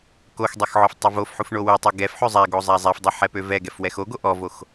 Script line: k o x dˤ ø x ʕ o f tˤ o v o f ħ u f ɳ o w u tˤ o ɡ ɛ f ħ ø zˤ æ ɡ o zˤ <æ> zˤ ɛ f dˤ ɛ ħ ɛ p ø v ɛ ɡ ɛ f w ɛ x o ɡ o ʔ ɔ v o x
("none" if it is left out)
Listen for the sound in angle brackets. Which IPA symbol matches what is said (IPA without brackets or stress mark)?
æ